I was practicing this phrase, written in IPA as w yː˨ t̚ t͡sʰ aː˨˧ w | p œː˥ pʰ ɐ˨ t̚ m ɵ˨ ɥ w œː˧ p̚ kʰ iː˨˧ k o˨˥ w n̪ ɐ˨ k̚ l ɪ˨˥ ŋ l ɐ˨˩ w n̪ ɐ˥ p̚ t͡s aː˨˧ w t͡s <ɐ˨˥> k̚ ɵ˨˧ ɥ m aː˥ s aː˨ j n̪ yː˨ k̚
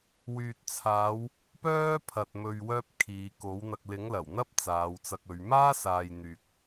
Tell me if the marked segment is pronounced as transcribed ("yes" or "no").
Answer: no